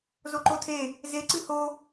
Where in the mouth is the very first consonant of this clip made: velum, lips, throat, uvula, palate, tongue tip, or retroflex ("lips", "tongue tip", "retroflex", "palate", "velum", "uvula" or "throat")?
tongue tip